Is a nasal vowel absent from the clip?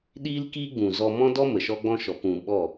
no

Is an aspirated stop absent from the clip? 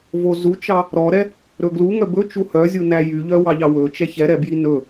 yes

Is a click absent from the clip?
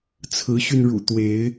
yes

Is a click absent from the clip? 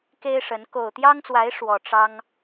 yes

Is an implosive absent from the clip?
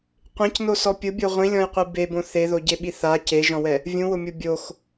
no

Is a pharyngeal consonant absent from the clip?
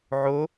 no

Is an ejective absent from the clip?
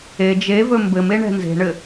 yes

